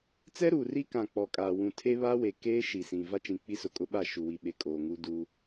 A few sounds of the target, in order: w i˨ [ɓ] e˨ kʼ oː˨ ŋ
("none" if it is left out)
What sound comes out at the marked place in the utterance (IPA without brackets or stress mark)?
ɓ